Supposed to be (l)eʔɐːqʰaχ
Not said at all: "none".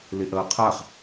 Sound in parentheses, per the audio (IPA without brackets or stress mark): l